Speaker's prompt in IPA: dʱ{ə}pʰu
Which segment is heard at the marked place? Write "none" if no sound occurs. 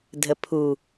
ə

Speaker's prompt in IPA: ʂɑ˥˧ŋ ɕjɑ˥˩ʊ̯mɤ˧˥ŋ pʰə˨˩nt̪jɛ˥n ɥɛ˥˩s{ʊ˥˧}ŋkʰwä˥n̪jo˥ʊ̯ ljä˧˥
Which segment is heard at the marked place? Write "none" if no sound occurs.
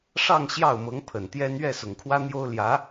ʊ˨˩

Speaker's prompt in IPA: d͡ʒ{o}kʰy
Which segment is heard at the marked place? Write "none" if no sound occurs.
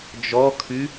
ɔ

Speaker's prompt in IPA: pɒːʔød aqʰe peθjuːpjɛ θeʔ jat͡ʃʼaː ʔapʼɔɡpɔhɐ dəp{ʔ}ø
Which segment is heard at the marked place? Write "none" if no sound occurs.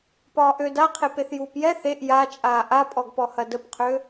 qʰ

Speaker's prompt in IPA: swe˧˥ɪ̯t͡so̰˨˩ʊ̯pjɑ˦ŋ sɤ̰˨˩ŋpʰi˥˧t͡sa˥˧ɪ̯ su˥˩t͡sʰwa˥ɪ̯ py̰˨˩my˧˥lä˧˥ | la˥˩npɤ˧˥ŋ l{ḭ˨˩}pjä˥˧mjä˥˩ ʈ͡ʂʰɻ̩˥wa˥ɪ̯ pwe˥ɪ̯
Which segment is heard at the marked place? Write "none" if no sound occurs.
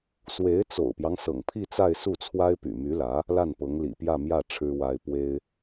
ḭ˨˩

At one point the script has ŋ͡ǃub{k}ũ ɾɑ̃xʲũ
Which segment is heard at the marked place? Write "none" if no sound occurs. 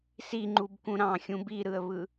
k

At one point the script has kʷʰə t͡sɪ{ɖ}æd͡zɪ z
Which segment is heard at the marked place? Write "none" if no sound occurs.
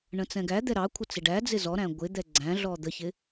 ɖ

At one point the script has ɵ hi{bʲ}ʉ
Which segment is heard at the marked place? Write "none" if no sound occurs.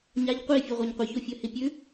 pʲ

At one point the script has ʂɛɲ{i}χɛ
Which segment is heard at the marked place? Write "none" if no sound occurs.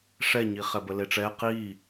i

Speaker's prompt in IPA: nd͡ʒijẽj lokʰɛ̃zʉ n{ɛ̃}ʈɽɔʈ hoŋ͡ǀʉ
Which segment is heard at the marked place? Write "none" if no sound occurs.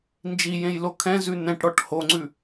ɛ̃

